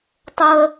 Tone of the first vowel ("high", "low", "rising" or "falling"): high